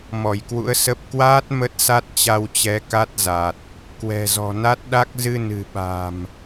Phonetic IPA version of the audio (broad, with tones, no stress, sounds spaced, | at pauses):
m ɔ˧˩ j k w ṵ˧˥ ə̯ s ə˦˥ p̚ k w aː˦˥ t̚ m ə˦˥ t̚ s a˦˥ t̚ t͡ɕ a˧ w t͡ɕ ɛ˨˦ k a˦˥ t̚ z a˨˩ t̚ | k w ɛ̤˨˩ z ɔ̤˨˩ n a˦˥ t̚ ɗ a˦˥ k̚ z ɨ˧ n ɨ̤˨˩ ɓ a̤˨˩ m